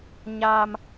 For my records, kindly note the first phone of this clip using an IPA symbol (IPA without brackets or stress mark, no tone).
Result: ɲ